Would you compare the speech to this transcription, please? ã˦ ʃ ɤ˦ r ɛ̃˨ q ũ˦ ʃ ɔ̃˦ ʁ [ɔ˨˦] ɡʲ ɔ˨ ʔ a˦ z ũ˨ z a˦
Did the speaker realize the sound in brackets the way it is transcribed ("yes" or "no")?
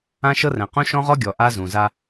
no